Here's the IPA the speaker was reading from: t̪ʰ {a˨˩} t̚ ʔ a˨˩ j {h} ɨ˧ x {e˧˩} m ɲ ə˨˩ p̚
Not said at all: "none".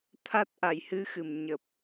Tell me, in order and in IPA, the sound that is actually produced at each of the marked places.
a˦˥, h, ɨ˧˩

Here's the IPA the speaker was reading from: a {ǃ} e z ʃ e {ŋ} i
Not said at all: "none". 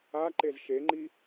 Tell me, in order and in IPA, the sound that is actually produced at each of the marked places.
ǃ, ŋ͡ǃ

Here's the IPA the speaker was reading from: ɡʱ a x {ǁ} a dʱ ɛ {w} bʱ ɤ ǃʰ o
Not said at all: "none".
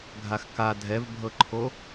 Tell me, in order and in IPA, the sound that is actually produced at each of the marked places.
k, v

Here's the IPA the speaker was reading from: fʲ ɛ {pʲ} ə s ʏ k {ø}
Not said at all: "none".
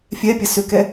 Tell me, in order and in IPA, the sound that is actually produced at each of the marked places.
pʲ, ɛ

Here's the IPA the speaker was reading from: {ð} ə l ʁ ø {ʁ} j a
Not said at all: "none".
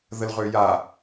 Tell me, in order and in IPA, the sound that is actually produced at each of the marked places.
ð, none

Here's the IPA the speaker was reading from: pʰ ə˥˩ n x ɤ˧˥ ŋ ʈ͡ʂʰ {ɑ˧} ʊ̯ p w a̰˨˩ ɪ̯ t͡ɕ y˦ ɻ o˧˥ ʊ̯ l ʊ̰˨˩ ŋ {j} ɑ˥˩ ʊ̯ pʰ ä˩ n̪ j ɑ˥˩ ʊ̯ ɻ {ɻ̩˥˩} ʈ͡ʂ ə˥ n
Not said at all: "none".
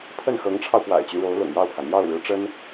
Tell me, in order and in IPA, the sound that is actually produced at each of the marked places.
ɑ˧, j, ɻ̩˧˥

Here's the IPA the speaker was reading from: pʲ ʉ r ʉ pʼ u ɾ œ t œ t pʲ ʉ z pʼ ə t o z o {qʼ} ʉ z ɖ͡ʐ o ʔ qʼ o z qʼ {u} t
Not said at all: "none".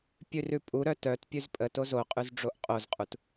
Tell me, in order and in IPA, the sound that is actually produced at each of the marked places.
qʼ, u

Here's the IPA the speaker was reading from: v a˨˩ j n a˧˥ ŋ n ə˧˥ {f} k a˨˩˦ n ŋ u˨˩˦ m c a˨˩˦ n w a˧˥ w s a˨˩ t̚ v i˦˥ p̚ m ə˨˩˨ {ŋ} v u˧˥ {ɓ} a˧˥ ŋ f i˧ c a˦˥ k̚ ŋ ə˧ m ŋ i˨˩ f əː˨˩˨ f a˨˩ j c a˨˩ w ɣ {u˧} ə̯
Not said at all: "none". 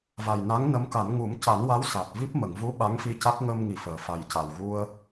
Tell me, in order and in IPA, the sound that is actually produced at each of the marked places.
m, ŋ, ɓ, u˧

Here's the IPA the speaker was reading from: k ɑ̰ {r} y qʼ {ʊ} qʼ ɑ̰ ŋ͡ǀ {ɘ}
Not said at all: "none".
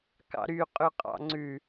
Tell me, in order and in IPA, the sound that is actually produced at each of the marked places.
ɾ, ʉ, ʉ

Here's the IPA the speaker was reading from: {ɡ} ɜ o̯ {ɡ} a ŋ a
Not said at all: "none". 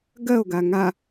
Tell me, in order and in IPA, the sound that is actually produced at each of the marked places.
ɡ, ɡ

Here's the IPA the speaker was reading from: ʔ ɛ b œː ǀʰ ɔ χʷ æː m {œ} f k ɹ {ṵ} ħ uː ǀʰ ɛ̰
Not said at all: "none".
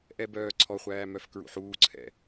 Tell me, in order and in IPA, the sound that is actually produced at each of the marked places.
œ, ṵ

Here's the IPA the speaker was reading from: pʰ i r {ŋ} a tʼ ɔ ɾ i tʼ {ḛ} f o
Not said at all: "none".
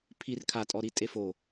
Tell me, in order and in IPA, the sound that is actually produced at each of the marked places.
kʰ, e

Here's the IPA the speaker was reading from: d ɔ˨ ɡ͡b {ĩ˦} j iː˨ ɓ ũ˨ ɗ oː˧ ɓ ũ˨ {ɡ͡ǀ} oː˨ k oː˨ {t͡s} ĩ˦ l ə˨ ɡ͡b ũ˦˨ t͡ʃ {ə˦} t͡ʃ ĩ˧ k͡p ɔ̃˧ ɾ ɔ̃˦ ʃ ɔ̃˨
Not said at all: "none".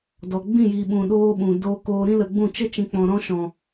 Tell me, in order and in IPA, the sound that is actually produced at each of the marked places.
ĩ˦˨, d, ɾ, ə˦

